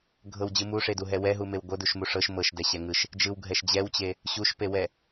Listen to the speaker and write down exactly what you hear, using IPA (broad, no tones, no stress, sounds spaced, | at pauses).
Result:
ɡʱ ɤ w d͡ʑ ɯ m u ʂ e d u ɦ ɛ w ɛ ɦ u m e w ɡʷ ɤ d u ʃ m u ʂ ɤ ʃ m ɤ ʃ d ɛ ɕ ɛ ŋ ɯ ʃ | d͡ʒ ɯ w ɡʱ ɛ ʃ d͡ʑ ɛ w t͡ɕ e | ɕ u ʃ p e w ɛ